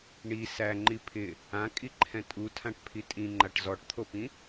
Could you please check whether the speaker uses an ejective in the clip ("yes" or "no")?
yes